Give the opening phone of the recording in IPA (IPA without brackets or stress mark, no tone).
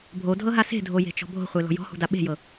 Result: bʱ